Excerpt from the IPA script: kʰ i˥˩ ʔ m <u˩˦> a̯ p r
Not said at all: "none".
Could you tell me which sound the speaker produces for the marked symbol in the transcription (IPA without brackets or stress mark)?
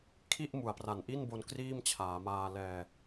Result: u˩˦